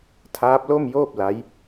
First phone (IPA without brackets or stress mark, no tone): tʰ